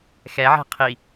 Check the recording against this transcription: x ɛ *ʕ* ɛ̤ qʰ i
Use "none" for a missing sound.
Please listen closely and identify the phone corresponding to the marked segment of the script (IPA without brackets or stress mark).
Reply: ʕ